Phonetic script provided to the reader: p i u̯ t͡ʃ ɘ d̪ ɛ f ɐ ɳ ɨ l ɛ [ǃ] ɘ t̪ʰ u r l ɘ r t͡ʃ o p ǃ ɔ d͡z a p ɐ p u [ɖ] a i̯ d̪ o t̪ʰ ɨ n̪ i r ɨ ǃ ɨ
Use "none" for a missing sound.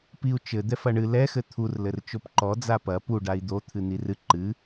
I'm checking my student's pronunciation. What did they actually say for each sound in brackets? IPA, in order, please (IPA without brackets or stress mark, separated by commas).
x, ɖ